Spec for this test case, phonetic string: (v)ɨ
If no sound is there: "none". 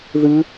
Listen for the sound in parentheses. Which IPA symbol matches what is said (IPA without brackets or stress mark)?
ð